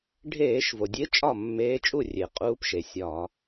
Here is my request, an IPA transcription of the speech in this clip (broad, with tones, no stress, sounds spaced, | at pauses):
ɖʱ eː˧˩˧ ʃ v o˩ dʲ e˧˥ t͡ʃʼ ɒ˥˩ mː eː˧˥ t͡ʃʼ u˥˩ rʲ e˩ qʼ uː˧˥ p ʃ e˩ sʲ ɒː˧˩˧